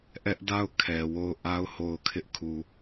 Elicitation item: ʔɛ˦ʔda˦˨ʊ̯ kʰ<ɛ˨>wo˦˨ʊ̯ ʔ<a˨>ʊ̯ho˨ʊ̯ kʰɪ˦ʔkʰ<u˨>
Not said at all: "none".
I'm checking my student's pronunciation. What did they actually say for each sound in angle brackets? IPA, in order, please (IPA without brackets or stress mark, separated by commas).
ɛ˨, a˦, u˨